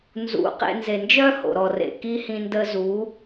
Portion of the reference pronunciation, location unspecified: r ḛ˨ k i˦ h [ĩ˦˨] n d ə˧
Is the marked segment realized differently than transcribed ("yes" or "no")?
yes